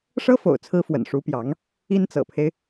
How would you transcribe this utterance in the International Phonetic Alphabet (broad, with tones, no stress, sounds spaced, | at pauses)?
ʂ ɤ˥ f o̰˨˩ ʊ̯ t͡sʰ ɹ̩˧˥ f w ə̰˨˩ n ʂ u˧˥ p j ɑ˧˥ ŋ | i˥ n t͡s ɤ̰˨˩ pʰ e˦ ɪ̯